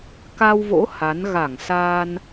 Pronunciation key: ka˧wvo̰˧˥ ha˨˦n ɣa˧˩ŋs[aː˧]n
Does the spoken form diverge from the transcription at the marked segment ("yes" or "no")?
no